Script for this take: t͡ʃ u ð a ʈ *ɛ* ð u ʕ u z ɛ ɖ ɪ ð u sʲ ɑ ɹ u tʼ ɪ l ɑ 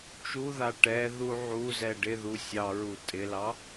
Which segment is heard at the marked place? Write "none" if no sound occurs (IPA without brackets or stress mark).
ɛ